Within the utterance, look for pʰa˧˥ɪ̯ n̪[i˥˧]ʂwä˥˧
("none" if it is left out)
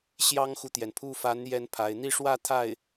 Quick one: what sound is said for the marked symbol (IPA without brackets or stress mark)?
i˥˧